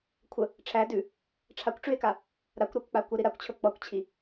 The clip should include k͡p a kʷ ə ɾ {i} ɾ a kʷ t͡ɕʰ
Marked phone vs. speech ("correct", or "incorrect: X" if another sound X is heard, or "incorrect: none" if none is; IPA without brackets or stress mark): correct